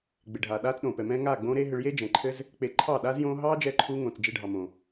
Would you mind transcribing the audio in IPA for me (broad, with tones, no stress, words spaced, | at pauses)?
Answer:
ɡ͡be˨ɖʱaː˨ɗaː˦t͡s ɗõ˨pɛ˨mɛ̃ː˦ ŋaː˦˨ɡ͡bõː˦ɾe˦ɦɘ˧ɭ je˦d͡ʒɛ̃˨ǃʰɘ˦z | k͡pe˨ ǃʰɑ˦˨ɗaː˦zjõː˦ ɦɑː˦d͡ʒɛ˧ǃʰuː˧ ŋõː˨t͡s d͡ʒe˧ɖʱɑ˨mõ˨